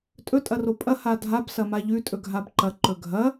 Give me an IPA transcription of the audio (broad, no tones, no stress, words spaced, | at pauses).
tʼɵ tʼɐropʼɐ hadʱab sɐmaʎʉ tʼɵɡʱabǃɐ ǃɵɡʱɐ